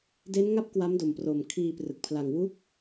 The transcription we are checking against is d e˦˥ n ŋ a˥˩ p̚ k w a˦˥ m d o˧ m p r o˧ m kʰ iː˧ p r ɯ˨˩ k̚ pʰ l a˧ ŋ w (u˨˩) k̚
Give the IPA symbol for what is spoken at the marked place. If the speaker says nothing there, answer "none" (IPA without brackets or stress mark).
u˦˥